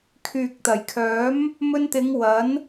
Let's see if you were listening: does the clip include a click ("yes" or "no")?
no